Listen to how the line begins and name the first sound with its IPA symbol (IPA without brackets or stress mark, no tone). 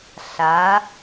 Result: ɬ